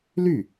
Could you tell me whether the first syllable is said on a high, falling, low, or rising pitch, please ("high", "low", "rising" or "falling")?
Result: falling